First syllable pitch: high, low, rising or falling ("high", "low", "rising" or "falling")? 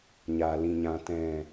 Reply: low